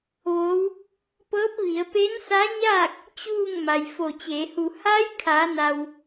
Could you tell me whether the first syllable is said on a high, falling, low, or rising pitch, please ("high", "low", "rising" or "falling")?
rising